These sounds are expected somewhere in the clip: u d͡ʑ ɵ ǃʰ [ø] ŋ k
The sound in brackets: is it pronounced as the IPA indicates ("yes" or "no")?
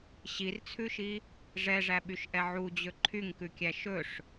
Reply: no